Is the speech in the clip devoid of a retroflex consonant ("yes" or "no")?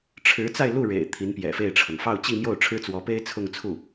no